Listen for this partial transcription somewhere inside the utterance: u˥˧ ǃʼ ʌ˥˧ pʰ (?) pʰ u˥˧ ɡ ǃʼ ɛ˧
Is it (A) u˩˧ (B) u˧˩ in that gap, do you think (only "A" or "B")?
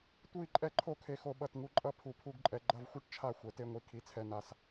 B